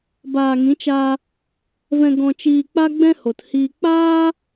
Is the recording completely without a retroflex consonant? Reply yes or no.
yes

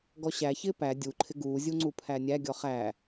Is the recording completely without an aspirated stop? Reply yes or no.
no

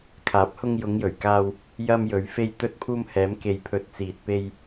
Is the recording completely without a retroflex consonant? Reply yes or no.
yes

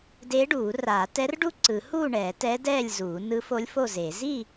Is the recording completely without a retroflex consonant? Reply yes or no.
no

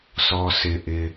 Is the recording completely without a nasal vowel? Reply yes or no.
yes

